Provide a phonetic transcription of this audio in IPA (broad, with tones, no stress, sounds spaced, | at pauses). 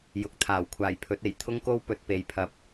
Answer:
j ʊ˨˥ k̚ t̪ʰ aː˨˩ w kʷʰ aː˨˩ j pʰ ɵ˨˥ t̚ e˨˩ j t̪ʰ ʊ˥ ŋ k o˥ w p ɵ˨ t̚ p e˨ j pʰ ɐ˨˥ p̚